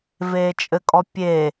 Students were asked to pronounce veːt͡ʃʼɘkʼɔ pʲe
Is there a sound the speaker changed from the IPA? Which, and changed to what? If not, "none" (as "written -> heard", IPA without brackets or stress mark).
none